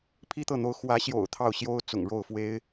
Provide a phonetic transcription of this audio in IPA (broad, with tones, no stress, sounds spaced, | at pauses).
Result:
pʰ i˥˧ t̪ ɤ˥˩ n̪ o˧˥ ʊ̯ x w ä˧˥ ɕ j o̰˨˩ ʊ̯ t̪ʰ ɑ˥˩ ʊ̯ ɕ j o˥ ʊ̯ t͡s ʊ̰˨˩ ŋ ɻ o˥˩ ʊ̯ f w e˥ ɪ̯